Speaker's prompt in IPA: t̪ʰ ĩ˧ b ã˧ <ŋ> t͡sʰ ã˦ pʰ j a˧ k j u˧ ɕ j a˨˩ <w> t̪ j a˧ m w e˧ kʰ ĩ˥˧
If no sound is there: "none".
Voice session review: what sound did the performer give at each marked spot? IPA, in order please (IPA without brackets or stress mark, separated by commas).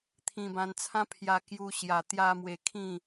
n, none